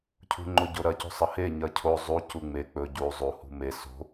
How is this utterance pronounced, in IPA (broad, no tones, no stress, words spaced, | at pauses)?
cʰṳŋ͡ǃoɟoɾɐ cṳsˤɐhe ɲɐcʰo zˤu cuŋ͡me k͡pɵ ɟu zˤu hṳme so̤